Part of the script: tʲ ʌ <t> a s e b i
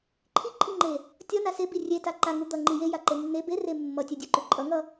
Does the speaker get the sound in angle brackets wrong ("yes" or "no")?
yes